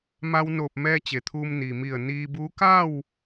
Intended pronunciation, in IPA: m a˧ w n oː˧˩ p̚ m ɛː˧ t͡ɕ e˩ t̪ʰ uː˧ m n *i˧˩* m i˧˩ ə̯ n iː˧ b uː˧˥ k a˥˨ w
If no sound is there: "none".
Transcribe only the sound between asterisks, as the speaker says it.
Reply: i˩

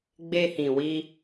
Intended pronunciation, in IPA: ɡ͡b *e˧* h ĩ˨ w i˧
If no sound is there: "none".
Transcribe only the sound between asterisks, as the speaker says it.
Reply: e˧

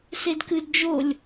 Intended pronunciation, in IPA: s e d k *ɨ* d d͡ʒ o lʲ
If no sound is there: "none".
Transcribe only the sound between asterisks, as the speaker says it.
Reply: ɨ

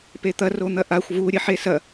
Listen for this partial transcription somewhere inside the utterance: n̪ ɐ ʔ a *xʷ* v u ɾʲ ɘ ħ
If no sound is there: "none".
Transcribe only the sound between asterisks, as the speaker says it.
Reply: xʷ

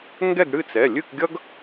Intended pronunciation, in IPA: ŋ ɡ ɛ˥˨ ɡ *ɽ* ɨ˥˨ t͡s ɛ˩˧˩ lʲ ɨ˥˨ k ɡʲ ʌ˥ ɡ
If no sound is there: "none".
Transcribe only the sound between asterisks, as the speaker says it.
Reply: ɽ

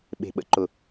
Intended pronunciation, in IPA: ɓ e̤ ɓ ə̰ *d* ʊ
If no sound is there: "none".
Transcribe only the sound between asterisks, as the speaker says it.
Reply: ǃ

